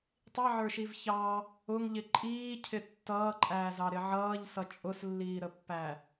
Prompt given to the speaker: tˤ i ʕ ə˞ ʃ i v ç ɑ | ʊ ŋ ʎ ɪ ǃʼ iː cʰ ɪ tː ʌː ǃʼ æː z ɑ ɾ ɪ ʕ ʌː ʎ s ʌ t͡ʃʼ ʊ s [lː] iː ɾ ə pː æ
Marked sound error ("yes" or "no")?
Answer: no